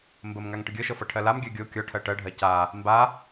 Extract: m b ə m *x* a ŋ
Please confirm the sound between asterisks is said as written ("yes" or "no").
no